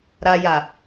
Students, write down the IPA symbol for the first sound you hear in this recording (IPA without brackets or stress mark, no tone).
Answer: ɾ